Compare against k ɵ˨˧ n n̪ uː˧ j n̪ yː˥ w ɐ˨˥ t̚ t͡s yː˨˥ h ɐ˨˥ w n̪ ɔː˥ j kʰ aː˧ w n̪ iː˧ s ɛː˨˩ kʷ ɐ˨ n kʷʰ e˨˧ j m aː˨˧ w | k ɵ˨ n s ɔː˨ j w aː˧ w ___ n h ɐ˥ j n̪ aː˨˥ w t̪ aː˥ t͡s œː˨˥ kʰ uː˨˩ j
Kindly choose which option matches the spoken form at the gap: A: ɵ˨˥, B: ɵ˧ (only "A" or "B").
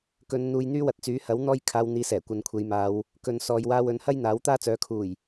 A